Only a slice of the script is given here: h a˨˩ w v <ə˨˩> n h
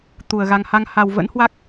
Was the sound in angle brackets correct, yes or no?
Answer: no